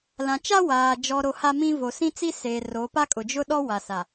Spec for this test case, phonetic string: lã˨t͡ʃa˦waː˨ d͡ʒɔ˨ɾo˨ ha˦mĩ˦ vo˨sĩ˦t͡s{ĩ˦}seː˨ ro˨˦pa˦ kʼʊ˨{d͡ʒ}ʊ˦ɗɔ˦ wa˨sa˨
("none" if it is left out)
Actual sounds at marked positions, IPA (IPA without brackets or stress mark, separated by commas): i˦, d͡ʒ